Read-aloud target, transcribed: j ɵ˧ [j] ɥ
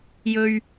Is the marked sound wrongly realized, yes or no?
yes